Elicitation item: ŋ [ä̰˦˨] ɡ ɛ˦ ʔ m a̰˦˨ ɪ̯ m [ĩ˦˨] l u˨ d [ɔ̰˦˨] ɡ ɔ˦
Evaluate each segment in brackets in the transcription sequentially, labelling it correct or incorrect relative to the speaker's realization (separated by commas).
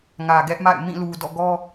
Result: incorrect, correct, correct